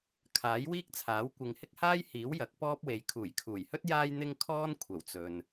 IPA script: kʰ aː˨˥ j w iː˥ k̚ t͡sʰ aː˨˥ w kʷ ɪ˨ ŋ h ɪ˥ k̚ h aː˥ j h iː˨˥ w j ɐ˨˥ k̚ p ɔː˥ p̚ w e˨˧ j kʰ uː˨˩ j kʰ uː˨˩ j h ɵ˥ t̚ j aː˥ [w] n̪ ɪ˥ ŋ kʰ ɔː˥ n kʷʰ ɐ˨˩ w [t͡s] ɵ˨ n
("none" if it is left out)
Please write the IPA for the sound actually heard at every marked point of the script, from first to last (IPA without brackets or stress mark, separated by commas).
j, t͡s